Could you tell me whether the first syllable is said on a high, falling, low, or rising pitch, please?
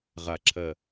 low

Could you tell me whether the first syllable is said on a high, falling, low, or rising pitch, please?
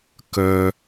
high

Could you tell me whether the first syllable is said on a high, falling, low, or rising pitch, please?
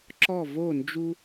falling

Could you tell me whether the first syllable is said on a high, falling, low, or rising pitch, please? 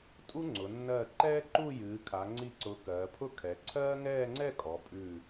high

